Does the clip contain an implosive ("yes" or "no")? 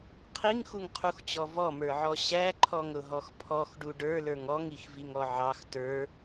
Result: no